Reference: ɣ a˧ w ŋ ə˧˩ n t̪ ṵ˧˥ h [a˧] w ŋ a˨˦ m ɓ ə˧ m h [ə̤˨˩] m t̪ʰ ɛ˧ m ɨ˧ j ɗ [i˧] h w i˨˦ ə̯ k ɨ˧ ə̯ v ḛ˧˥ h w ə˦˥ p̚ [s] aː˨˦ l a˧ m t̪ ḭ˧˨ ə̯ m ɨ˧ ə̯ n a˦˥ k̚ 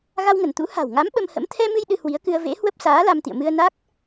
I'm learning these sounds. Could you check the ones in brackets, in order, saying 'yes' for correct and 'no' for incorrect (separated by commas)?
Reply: no, no, no, yes